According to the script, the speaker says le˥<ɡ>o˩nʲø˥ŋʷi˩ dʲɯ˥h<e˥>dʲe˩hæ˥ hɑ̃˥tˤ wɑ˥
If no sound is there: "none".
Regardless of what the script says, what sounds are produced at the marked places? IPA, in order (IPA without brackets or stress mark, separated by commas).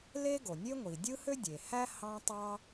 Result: ɡ, ø˥